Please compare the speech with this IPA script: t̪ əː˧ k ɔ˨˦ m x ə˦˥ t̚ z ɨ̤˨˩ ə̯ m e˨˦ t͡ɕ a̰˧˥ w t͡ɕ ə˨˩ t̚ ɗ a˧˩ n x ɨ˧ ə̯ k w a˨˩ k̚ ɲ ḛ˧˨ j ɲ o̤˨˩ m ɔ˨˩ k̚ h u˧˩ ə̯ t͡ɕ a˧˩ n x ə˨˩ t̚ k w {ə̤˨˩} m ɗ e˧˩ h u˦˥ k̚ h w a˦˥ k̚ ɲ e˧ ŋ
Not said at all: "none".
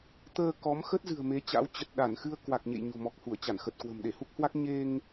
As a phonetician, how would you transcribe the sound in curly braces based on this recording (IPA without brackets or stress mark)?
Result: ə̤˨˩